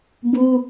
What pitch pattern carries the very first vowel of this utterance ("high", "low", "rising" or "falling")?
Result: high